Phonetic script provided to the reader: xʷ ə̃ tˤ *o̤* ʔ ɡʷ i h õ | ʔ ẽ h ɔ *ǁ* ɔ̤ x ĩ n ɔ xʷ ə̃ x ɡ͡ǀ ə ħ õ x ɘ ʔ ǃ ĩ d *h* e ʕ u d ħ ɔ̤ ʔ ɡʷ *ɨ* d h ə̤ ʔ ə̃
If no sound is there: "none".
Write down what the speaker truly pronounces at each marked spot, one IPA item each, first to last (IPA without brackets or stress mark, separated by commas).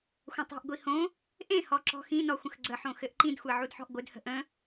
o̤, ǁ, xʷ, ɨ